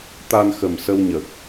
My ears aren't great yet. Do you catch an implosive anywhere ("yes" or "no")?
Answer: no